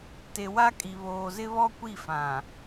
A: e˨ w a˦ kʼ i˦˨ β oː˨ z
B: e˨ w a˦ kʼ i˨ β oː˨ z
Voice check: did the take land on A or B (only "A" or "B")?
B